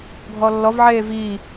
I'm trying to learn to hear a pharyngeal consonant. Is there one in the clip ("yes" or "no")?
yes